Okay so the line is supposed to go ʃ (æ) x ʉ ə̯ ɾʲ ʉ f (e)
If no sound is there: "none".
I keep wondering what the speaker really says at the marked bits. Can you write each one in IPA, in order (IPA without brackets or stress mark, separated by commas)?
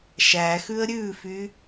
æ, y